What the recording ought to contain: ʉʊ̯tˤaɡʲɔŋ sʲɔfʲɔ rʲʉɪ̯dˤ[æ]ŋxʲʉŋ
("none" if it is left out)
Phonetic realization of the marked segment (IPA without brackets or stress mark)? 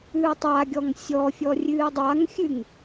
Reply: a